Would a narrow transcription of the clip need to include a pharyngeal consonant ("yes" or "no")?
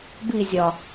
no